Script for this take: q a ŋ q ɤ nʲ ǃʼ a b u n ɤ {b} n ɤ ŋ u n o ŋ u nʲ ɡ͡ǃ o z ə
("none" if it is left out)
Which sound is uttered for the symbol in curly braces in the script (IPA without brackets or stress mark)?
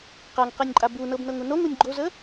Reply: b